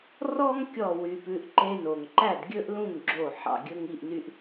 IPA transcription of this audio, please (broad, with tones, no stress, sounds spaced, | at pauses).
r ɔ˥ ŋ kʲ ɔ˥˩ w y˧ p ʉ˧ ʔ ǃ e˧ n o˩ ŋ ǃ æ˥˩ d ɡʲ ɵ˥ ʔ l ũ˥˩ ŋ ɡ͡ǁ o˥˩ ħ ɑ̰˥˩ ɡʲ ɵ˥ ŋ i˥˩ ʔ n y˧ ʔ